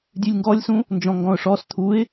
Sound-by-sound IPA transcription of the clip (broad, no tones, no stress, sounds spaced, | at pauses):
dʲ ʉ lʲ ŋ ɡ ɔ lʲ s ũ | n d͡ʒ ɔ̃ ŋ ɡ ɔ̃ ʊ̯ ʂ ɔ s t̪ʰ u ɪ̯